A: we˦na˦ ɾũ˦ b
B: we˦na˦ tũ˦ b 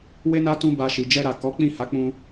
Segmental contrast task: B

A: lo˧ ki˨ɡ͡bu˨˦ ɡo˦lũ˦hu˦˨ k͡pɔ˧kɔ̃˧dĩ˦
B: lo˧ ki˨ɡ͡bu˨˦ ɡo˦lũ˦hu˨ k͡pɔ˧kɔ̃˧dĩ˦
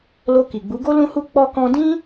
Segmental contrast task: A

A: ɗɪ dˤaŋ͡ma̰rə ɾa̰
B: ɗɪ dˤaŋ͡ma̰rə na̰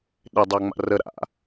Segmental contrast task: A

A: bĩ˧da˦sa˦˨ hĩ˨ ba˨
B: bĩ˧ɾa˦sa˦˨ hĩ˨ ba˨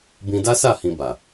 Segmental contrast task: A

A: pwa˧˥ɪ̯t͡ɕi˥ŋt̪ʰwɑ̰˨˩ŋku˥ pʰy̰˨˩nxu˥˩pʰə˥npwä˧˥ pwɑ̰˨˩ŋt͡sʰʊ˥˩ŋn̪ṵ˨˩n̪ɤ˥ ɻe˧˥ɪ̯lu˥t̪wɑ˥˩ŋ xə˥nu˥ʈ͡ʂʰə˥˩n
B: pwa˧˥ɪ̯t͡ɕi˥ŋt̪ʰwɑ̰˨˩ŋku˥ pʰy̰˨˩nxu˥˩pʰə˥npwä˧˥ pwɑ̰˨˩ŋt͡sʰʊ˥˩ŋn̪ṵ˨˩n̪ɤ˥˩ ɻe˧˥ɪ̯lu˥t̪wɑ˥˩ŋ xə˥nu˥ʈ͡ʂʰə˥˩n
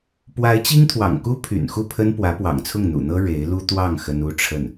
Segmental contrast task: A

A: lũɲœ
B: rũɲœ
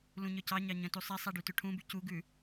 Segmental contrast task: A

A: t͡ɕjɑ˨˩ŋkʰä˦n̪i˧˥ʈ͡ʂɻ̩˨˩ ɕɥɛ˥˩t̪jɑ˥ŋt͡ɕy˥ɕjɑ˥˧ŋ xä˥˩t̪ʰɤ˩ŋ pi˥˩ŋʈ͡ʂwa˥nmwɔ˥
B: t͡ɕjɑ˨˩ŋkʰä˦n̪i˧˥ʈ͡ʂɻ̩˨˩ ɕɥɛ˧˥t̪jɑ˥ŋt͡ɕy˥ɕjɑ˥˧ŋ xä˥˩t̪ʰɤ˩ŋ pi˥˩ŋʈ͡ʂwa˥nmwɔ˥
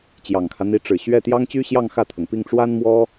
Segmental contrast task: A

